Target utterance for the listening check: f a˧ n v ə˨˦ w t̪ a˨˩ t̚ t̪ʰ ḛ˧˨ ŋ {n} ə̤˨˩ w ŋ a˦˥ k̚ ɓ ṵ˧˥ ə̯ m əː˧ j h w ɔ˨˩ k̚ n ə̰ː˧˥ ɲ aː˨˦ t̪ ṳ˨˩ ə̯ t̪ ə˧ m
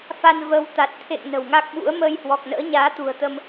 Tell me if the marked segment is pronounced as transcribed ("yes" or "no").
yes